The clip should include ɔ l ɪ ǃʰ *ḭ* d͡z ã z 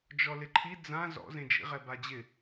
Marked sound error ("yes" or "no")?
yes